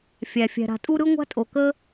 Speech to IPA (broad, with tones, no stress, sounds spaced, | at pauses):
fʲ æ˩ fʲ æ̤˨ ɾ a̤˨ tʼ u˥ ɾ ɯ˥ ŋʷ a̤˥ tʼ o˨ k ə˥